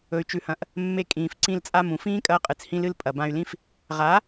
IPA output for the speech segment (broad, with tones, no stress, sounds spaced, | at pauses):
ɵ˨ y̯ t͡ʃ ʉ˨ h ɐ̃˨ ʔ | mː e˧ kʼ ĩː˨ f ǀ ĩ˧ l t͡sʼ a˧ m ũ˨ f ĩː˦ kʼ ɐː˧ qʼ ɨ˨ t͡s h ĩ˧ l ɨ˧ l pʼ ɐ˨ b ã˧ y̯ l ĩ˦ f | ʁ a˨˦